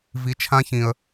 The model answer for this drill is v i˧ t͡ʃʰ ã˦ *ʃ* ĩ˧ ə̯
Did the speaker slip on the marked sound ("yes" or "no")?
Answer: yes